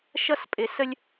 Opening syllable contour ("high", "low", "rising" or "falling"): high